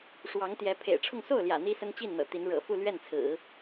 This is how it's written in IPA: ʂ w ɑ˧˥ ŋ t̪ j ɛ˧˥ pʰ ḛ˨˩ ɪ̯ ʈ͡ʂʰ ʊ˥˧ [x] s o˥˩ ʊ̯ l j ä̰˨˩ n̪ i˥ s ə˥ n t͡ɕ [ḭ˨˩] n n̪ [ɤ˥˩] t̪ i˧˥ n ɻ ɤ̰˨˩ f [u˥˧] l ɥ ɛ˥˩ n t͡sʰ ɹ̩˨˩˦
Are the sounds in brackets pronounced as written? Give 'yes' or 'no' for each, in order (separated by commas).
no, no, no, yes